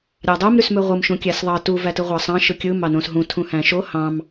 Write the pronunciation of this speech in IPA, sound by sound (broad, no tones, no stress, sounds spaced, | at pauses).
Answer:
ɾʲ ɑ dˤ o m ɾ y s m ø ʁʷ ɯ m ʃ ũ kʲ æ s ðˤ ɑ t u v æ t ɯ ʁʷ ɑ sˤ ɑ̃ ʃ ɯ kʲ ɯ m ɑ n õ s ɦ ũ tʰ ũ h æ̃ ʃ o h ɑ̃ m